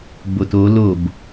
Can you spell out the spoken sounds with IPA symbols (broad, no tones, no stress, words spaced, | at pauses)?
boto lob